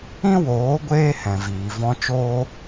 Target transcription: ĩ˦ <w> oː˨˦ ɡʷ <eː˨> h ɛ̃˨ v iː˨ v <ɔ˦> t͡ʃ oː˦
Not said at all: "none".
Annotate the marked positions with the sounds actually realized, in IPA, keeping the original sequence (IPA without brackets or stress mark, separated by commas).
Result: w, eː˦, ɔ̃˦